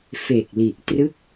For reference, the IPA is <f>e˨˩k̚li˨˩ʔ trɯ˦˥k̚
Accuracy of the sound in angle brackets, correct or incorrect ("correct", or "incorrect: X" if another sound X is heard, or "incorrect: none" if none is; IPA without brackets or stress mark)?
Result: correct